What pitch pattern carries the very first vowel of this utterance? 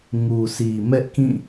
low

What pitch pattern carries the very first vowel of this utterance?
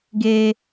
high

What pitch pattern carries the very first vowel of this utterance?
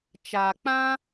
low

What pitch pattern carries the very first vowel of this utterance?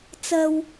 low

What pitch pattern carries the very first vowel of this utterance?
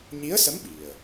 rising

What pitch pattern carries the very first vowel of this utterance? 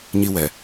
high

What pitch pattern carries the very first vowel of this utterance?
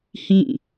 falling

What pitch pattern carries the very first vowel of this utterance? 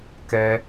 high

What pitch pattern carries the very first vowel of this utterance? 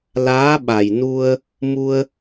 rising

